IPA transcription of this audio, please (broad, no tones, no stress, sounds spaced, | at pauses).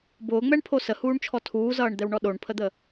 b ʊː ŋ͡m ɛ ɳ pʰ o s ə h uː ɳ t͡ʃʰ ɔ tʰ uː z ʌː ɳ d̪ ɛ w ɳ ɔ ɗ o ɳ pʰ ə d̪ ə